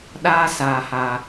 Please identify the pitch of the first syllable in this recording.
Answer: high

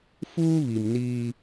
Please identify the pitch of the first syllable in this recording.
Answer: high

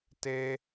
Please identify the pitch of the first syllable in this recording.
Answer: high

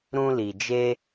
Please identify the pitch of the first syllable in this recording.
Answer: high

